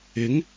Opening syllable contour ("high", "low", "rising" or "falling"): rising